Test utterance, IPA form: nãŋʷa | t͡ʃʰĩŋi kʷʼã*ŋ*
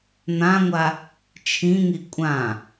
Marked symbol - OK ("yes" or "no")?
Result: no